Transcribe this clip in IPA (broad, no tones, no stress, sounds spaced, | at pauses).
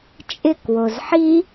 t͡ʃʼ ɪ k w o z ħ i